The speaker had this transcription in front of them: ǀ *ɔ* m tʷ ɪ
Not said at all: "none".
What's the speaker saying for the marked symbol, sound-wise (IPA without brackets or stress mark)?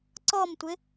ɔ